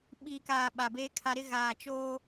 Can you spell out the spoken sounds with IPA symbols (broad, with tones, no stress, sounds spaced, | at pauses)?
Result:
ɓ iː˨ k aː˨ ɓ a˨ b eː˦ kʰ a˦ ɾ ɪ˦ ɣ aː˨ t͡ʃ oː˦